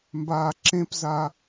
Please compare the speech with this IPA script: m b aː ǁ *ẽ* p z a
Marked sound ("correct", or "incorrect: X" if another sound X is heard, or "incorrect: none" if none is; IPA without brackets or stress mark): correct